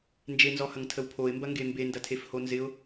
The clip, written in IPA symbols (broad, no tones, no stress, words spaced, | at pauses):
nd͡ʒenzɔhɐŋtʰəw pʰoɪ̯mbɐŋɡe mbendɐtʰefho nzɪʊ̯